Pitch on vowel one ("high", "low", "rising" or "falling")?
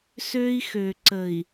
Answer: high